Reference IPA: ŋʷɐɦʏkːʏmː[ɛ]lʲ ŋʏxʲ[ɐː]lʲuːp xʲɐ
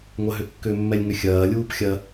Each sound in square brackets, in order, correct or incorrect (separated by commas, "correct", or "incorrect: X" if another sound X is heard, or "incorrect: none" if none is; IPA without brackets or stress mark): correct, correct